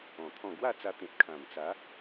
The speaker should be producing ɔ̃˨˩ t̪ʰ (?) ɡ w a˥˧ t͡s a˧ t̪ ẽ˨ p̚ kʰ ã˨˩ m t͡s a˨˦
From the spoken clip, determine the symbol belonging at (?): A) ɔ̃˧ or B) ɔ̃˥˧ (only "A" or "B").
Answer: B